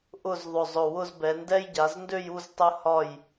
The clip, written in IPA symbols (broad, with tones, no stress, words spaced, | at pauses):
ʔʊ˥˧zðˤʊ˧˩zˤʊ˧˩ wʊ˥˧zbɛ˩˧ndɛ˥j ɟa˩˧zndø˥˧ju˥˧z tˤɘ˧hɒ˧˩j